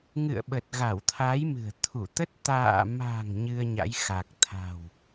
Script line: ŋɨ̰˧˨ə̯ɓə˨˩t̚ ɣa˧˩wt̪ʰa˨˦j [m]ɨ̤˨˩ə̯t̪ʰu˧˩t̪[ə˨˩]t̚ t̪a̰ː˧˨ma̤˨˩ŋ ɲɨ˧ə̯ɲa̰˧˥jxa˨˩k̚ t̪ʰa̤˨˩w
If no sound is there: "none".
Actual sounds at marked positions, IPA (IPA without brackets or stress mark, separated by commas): m, ə˦˥